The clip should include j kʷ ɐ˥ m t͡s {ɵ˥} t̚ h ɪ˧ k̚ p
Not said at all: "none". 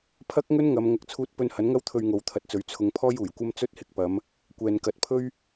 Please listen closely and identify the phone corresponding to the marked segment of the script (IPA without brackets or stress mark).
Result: ɵ˥